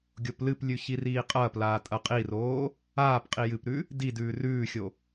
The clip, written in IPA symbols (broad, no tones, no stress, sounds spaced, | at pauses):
ɡʲ o p l ɨ p lʲ ʉ ç i r iː qʼ ɐː p l aː tʼ ɐ qʼ i r oː | aː p qʼ i j ɨ p ɾ ʉ | d i d ʉː r ʉː xʲ o